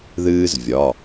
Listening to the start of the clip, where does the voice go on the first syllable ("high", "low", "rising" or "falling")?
high